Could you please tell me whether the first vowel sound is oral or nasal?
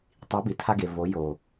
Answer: oral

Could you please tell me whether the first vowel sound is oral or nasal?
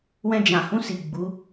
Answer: nasal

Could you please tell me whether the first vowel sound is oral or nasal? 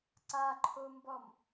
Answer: oral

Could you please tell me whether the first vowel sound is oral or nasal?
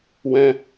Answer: nasal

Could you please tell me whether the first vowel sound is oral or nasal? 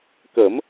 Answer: oral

